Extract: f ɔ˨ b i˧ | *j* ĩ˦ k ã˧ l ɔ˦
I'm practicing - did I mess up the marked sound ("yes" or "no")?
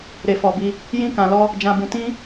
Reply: no